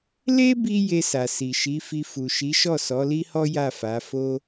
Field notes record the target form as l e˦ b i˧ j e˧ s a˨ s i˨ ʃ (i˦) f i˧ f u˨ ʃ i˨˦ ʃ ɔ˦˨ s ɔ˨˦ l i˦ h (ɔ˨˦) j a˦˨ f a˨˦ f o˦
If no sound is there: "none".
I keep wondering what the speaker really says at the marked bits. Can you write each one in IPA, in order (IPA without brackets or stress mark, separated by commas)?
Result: i˨˦, ɔ˦